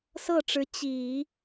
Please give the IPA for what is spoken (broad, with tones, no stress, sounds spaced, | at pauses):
s ɤ˥˩ ʈ͡ʂ ɻ̩˧˥ t͡ɕ i˨˩˦